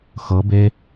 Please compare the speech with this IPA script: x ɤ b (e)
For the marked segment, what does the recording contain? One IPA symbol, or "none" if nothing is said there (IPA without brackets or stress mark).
e